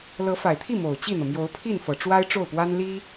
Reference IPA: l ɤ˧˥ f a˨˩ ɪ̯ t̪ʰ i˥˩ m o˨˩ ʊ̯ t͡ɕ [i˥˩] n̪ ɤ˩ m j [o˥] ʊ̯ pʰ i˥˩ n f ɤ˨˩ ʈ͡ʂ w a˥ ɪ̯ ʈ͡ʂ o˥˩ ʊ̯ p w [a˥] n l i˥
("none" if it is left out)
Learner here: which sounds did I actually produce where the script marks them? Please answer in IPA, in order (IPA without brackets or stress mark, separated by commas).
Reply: i˥˩, o˧˥, a˥